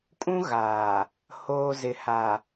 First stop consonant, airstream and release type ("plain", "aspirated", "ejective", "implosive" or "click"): ejective